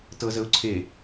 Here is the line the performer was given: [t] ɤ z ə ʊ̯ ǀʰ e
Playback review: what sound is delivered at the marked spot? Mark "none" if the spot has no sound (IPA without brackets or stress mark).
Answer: t